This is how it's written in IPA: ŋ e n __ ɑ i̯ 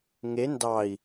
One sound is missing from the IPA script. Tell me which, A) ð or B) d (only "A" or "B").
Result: B